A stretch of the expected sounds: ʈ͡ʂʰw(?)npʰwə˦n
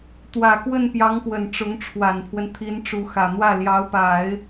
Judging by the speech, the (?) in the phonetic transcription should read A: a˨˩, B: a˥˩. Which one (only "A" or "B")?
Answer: A